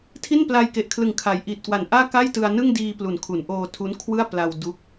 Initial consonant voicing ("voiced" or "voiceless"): voiceless